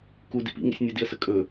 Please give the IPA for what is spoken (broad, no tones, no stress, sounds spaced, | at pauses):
k u d ḭ p ḭ ŋ ḭ sʲ nʲ ə d i ə̯ s ə kʼ ɵ